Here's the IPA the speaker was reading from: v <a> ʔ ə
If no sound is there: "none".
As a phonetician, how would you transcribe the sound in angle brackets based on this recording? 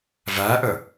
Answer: æ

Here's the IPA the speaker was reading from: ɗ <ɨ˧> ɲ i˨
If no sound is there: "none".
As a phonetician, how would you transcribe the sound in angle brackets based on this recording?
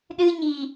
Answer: ɨ˧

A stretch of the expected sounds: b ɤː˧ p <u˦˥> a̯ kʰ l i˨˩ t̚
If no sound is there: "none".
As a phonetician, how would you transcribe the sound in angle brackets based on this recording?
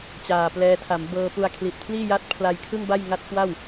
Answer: u˧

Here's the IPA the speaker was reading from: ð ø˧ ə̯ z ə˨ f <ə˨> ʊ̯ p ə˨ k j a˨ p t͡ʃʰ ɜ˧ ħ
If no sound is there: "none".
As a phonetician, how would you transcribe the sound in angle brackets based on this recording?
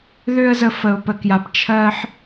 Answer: ə˨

